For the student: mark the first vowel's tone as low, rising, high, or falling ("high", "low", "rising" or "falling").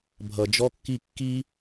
low